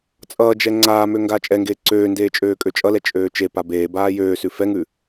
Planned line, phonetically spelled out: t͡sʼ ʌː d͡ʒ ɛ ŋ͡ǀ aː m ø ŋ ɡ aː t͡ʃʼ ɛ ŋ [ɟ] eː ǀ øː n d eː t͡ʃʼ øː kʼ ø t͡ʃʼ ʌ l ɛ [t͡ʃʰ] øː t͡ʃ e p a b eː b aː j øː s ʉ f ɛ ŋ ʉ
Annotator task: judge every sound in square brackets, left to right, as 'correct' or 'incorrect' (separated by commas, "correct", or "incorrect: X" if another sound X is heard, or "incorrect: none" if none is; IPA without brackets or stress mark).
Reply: incorrect: ɡ, incorrect: t͡ʃʼ